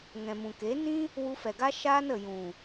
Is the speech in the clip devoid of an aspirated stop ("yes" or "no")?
yes